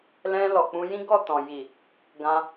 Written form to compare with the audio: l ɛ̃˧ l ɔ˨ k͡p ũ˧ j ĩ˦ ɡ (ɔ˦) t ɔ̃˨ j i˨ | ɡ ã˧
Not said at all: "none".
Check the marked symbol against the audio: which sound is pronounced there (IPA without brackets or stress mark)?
ɔ˦˨